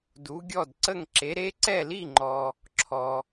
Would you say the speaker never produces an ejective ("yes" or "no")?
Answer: yes